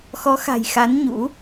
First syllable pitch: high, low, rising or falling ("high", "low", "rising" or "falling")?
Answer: rising